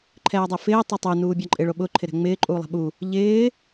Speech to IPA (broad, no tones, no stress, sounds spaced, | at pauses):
ǃʰ ɛː dˤ ɛ f ɪː tˤ ɪ tˤ u n uː bʲ a ǃʼ ɪ ɭ o ɓ ʊ ǃʰ ɪ ɾ ɛ̤ ŋ͡m ɪː ǃʼ uː lˠ ɛ̤ ɓ u | ʎ ɪː